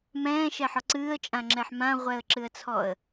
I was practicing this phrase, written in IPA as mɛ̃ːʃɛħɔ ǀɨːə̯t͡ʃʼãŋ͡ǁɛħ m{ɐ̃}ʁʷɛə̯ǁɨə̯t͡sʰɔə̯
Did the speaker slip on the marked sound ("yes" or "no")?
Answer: yes